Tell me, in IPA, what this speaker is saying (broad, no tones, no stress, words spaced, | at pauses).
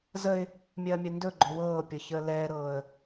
zəɪ̯ | mʲɜːmʲɜndɵɡ͡ǃɵ wɤːpʲɤ çəːlɛːɾɤːə̯